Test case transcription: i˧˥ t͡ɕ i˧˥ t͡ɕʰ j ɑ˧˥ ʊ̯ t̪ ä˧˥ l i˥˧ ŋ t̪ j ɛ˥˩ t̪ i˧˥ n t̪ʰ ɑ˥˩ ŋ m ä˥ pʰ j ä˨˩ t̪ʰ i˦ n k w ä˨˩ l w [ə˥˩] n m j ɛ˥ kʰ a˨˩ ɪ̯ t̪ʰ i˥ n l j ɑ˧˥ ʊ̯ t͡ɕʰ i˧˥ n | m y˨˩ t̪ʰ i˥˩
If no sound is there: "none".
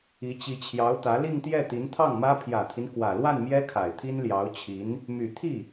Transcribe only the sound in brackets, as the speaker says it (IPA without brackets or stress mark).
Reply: a˥˩